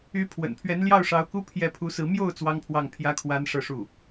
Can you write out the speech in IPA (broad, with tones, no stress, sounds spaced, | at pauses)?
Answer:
y˧˥ pʰ w ə̰˨˩ n pʰ ɥ ɛ˧˥ n l j ɑ˥˩ ʊ̯ ʂ ɑ˧˥ ʊ̯ k u˥ pʰ j ɛ˧˥ pʰ u˧˥ s ɹ̩˧˥ m j o˥˩ ʊ̯ t͡s w ɑ˥ ŋ pʰ w ɑ˥˩ ŋ pʰ j ä˥ kʰ w a˥ n ʂ ɤ˥˧ ʂ u˥˩